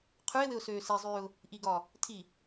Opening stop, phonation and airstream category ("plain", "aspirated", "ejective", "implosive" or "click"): aspirated